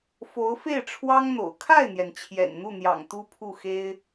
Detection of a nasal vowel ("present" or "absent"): absent